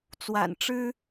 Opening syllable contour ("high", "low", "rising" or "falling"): low